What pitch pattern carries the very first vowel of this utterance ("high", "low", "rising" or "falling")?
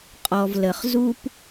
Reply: low